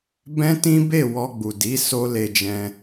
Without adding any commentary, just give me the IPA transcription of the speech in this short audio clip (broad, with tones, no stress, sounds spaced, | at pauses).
b ɛ̃˦ t ĩ˦ b e˦˨ w ɔ˧ ɡ͡b u˨ d i˨˦ s o˦ l e˧ d͡ʒ ɛ̃˧